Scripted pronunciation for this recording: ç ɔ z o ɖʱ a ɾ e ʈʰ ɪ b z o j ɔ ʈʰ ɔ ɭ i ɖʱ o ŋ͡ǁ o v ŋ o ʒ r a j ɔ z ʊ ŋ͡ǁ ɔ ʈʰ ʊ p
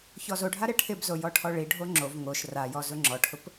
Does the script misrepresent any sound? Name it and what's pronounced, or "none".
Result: ʒ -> ʃ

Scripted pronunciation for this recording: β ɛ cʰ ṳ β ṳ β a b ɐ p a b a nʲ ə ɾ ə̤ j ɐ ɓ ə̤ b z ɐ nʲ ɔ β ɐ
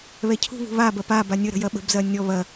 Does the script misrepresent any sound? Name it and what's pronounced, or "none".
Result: none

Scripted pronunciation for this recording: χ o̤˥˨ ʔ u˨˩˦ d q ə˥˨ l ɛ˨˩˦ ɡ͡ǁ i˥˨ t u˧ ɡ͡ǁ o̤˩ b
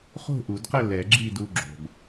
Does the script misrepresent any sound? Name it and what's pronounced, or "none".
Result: t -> d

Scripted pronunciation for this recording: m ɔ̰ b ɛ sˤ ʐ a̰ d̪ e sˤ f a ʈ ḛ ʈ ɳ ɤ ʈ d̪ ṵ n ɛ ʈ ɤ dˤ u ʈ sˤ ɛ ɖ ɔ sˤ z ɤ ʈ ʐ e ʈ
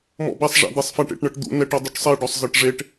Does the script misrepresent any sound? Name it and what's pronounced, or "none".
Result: none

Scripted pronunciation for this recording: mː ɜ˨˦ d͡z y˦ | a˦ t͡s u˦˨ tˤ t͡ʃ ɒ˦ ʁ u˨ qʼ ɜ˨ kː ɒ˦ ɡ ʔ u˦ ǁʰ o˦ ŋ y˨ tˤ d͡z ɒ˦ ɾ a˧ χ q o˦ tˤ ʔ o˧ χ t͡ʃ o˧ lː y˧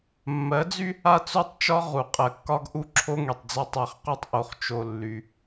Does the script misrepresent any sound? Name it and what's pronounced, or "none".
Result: ɾ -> tˤ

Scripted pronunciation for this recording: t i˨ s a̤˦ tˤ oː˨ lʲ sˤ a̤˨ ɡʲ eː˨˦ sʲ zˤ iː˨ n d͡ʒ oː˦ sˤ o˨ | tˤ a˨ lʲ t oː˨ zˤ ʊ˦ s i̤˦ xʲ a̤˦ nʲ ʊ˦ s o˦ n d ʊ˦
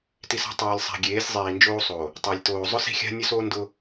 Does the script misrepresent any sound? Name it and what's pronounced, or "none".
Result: none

